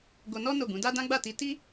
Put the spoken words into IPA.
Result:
ɡ o˧ n ɔ˦ n o˦˨ ɡ ũ˨˦ d a˦ d ã˦ ɡ͡b a˦˨ t i˧ t i˦

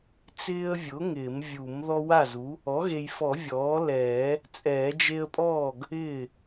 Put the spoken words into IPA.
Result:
t͡s ɪː˦ ə̯ vʲ ʊ˩˥ ŋ ɪː˨˩˦ m vʲ u˨˩˦ m ð ɔ˦ w a˥˩ z u˩˥ | ɔ˩˥ ɣ e˨ j f ɔ˨˩˦ vʲ ɔː˩˥ l ɛː˨˩˦ | t͡sʼ ɛː˨˩˦ d͡ʒ e˦ ə̯ pʼ ɔː˥˩ ɡ | ɪː˥˩

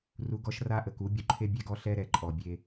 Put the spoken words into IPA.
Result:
r u˧ ɡ ɔ˦ ʃ r a˦ ʔ ə˨ k u˨˦ bʲ u˧ ǃʰ e˦ bʲ ɛ˦ ɡ ɔ˦ ɬ ɛ˦ ɾ ɛ˨ ǃʼ ɔ˨ bʲ e˧

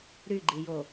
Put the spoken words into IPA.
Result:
ɾ y ɡ͡ǃ i j o

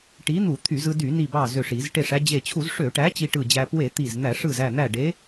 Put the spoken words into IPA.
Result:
ʈ i˨˥ n̪ u˧˩˧ t̪ʰ y˧˩˧ z ɯ˧ d y˧˩˧ n i˧˩ b ɑ˧˩ z ø˧˩ ʂ i˧˩˧ z ʈ e˧˩ ʂ æ˧ d͡ʑ e˧˩ t͡ɕʰ u˧˩˧ z ʂ ø˧˩˧ ʈ æ˨˥ t͡ɕ i˧ ʈ ɯ˧˩ d͡ʑ æ˧ p w e˧˩˧ t̪ i˧˩ z n̪ æ˧˩˧ ʂ ɯ˧˩ z æ˧˩ n̪ æ˧˩ ɖ e˨˥

